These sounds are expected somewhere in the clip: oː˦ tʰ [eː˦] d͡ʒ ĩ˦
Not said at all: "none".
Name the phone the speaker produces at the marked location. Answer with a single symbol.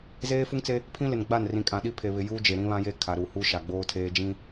eː˦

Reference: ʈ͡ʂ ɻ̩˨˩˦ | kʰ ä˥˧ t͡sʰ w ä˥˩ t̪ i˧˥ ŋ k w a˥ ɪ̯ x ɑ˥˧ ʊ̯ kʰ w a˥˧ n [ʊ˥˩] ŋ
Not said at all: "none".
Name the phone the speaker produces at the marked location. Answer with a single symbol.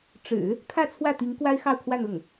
ʊ˥˩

